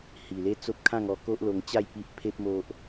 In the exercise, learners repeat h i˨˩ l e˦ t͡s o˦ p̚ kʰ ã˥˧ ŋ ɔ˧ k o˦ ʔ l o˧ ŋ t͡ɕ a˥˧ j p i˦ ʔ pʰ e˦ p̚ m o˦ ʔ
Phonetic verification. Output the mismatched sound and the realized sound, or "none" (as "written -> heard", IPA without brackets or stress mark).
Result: none